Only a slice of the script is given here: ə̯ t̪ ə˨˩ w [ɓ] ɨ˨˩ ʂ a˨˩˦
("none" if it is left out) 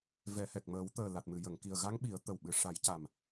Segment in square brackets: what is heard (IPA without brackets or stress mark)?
ɓ